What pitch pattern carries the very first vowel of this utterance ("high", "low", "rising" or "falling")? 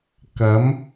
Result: rising